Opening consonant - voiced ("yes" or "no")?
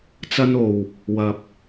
no